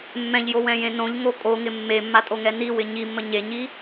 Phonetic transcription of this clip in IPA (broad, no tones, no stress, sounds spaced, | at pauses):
mː ɛ̃ ʎ j o w ɛ̃ j ẽ n õ ʎ ŋ o kʼ o ŋ ɪ mː e mː a tʼ o ŋ ɛ n i w ɪ ɲ i mː ə ɲ e ɲ i